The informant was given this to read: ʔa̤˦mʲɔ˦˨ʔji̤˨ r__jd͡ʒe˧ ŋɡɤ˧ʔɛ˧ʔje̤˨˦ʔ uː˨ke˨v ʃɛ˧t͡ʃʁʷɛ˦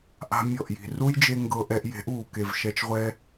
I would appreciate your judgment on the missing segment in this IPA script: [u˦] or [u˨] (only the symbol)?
u˦